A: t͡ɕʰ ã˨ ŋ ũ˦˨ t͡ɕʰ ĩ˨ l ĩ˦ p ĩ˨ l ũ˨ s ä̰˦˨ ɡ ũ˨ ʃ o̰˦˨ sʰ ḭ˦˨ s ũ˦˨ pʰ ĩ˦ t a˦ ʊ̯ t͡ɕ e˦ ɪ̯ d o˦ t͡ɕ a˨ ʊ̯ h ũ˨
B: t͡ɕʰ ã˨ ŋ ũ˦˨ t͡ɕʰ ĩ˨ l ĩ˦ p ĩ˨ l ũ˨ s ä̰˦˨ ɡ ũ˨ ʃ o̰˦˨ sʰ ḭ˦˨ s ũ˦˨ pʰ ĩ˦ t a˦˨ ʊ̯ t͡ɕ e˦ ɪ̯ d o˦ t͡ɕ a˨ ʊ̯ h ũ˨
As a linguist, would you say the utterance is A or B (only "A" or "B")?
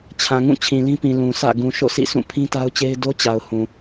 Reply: A